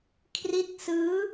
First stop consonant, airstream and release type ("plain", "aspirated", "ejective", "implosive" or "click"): aspirated